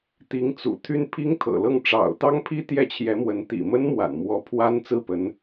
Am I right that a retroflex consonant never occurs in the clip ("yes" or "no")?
no